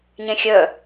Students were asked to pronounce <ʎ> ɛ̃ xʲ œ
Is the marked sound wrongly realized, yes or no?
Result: yes